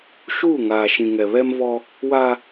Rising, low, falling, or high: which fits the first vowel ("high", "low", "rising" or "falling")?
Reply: falling